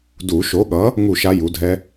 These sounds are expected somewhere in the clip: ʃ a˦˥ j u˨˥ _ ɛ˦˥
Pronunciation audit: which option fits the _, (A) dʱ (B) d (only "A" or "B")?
A